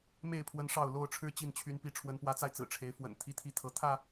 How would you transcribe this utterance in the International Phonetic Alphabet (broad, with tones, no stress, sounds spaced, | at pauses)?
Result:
m e˥˨ ɪ̯ pʰ w ə˦ n ʂ ɑ˥˨ ʊ̯ l o˥˨ ʊ̯ ʈ͡ʂʰ ɻ̩˥˨ t͡ɕ i˥˨ n t͡ɕʰ y˨˦ n p i˨˦ ʈ͡ʂʰ w ə˨˦ n p w ä˨˦ t͡s a˧ ɪ̯ t͡s ɹ̩˨˩ ʈ͡ʂʰ e˨˦ ɪ̯ f w ə̰˨˩ n t̪ʰ i˦ t̪ʰ i˥˨ t̪ʰ ɤ˨˦ t̪ʰ ä˥˨